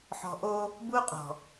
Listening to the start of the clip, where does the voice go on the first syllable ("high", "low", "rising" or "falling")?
low